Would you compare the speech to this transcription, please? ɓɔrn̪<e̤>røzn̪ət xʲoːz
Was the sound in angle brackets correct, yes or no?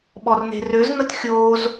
yes